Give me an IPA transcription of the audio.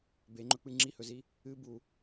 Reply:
b e ŋ͡ǃ ɵ k͡p ɨ ŋ͡ǁ i h ɵ z i | ɨ b u

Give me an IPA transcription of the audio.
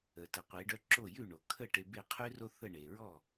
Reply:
ə˩ t ə˩˥ qʷ e˩˥ ɖ œ˥ ǁ o˥˩ j ʉ˥˩ ɳ o˩ kʰ ə˥˩ ʈ e˧ b e˥˩ qʰ ʉ˥ r o˥ θ ə˥˩ ɳ e˩ ɹ ɔ˥˩

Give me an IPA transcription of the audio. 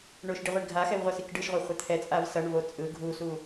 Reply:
ɳ o ʃ ɖ i ʁʷ i ɳ ɡʱ a x ɛ v ʁʷ a s i k ɖ ɯ ʃ ʁʷ ɛ χʷ a t̪ʰ ɛ t͡sʼ a v s ʌ ɳ v o t͡sʼ ɯ ɡʱ u s u

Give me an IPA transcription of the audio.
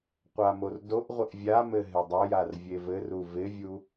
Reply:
qʷ a m o r d o ʔ ʁʷ ɪ ʔ vʲ a m ɘ ɦ ɪ dˤ o j a r vʲ e v ɘ r u v ɪ vʲ u

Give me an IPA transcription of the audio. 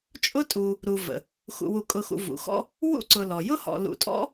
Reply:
t͡ʃʼ ʊ˥ tʼ u˨ | ɾ u˨ v ə̰˩ | x ṵ˨ w u˨ kʼ ʊ˨ x ṵ˨ v ṵ˩ x ɔ̰˥ | w ṵ˥ ǀ ʊ˨ l ɔ˩ j ʊ˥ h ɔ̰˨ l ṵ˨ tʼ ɔ̰˥

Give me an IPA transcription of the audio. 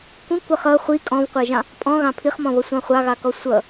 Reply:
kʷ ĩ kʷ ʌ χ ʌ χʷ i kʼ ɔ̃ v qʷ æ ʒ ɑ̃ | pʼ ɔ̃ ɣ ɑ̃ pʰ i χ m ɔ̃ β ʌ sʷ ɑ̃ χʷ ɑ ɣ ɑ k ɔ sʷ ʌ

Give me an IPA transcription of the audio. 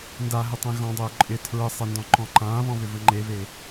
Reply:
n d a ɦ ʏ tˤ ẽ ɣ ɔ̃ dˤ ʏː ǃʼ ɪ tʰ ɹ ə sˤ ɪ n d ɔ̃ ǃ ɔ̃ ǃ ãː β ɔ̃ β ʏ v ə ŋ͡ǃ e β e

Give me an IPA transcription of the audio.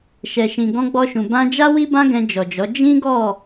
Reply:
ʃ ɛ˨ ʃ ĩ˨ ɡ ɔ̃˧ ɡ͡b ɔ˧ ʃ ũ˨ b ã˧ d͡ʒ a˦ w i˦ b ã˦ ɡ ɛ̃˧ d͡ʒ ɔ˨ d͡ʒ ɔ˨˦ d͡ʒ ĩ˦ ɡ ɔ˦˨

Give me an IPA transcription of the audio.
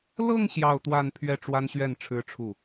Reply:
l ɤ˥˧ ŋ ɕ j ɑ˥˧ ʊ̯ t̪ w a˥˧ n pʰ ɥ ɛ˥˩ ʈ͡ʂ w a˥ n ɕ ɥ ɛ˥˩ n ʈ͡ʂʰ ɻ̩˥ ʈ͡ʂʰ u˥˩

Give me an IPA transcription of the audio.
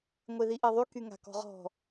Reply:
ŋʷ e ð i ʔ e ðˤ y k y ŋ a̤ k ɔ̤ ʁ ɔ̤

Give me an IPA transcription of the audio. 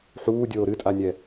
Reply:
ħ uː dʲ oː ɾ ɨ tʼ a nʲ ɛ

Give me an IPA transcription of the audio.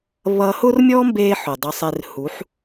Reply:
β ʌ˧ h ʊ˦ r mʲ ɔ˦ m b e˧ ħ ʊ˨ dˤ ʊ˧ sˤ e˧ r h u˨˦ ħ

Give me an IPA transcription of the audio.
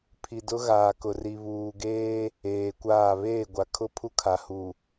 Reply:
pʰ i˨ d ʊ˦ ɣ aː˨ k ʊ˨ r i˨ β uː˨ ɡ eː˦ | eː˨ kʷ aː˦˨ β eː˦˨ ɡʷ a˨ kʰ ʊ˦ pʰ u˦ kʰ a˨ h u˨

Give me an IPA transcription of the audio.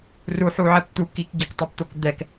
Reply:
r u ħ u ʕ ɛ p t̪ u k i k ɟ ɛ k tˤ ɛ p t̪ o k d̪ ɛ k

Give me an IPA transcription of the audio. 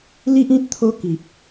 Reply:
l i˦ ʔ ĩ˦ t̚ t̪ʰ o˦ k i˨ p̚

